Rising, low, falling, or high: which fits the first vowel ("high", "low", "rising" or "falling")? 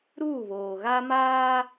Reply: falling